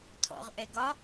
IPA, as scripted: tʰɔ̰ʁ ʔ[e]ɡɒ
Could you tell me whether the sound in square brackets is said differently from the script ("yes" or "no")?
yes